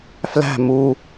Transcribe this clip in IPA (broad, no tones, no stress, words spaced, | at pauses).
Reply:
flæ̤ mu